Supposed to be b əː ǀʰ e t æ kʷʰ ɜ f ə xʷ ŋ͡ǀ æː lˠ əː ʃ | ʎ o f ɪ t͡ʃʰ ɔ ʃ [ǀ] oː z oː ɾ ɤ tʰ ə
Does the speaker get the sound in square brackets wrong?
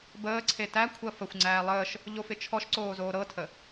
no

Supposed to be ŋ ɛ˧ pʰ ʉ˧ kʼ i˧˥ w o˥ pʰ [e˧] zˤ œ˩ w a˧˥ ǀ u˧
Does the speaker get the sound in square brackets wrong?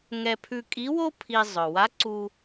yes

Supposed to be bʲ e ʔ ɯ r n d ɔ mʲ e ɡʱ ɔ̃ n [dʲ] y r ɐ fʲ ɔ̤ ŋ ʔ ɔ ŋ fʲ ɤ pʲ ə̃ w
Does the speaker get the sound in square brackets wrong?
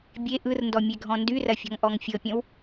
yes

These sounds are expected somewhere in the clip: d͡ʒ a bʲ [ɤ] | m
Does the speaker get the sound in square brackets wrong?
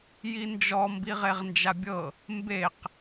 no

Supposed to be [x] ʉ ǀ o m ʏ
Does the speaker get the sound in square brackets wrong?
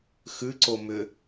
no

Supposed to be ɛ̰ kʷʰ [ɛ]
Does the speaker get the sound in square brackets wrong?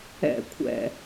yes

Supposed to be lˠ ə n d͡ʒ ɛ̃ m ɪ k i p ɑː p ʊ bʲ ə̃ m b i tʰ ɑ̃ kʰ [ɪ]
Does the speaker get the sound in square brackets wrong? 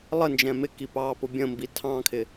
no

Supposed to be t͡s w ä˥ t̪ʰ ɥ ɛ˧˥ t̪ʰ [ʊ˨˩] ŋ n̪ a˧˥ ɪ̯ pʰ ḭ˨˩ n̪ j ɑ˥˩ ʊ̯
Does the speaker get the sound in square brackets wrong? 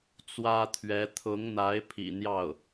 yes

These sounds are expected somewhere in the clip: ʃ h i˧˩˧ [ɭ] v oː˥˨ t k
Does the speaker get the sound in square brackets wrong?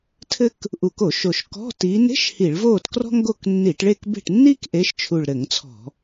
no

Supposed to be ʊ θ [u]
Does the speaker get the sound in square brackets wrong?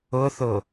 yes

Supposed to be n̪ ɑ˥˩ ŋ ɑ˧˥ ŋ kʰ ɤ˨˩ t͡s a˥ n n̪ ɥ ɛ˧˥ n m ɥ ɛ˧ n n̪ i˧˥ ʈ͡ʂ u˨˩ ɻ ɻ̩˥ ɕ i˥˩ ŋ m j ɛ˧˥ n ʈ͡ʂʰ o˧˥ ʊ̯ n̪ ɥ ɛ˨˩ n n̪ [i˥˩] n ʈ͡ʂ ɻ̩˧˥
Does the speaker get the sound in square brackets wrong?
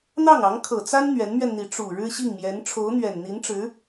yes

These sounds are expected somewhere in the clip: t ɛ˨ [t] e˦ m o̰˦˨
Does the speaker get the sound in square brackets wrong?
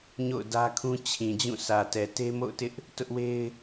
no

